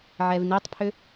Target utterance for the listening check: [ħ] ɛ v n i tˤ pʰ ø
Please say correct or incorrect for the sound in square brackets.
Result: incorrect